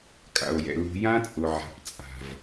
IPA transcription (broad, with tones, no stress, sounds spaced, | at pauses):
kʼ a̰˨ o̯ j ɛ̰˨ l ṳ˦ j ã˦ t͡sʼ ʊ˨ ʕ a̤˨ p t͡sʼ a̤˨ v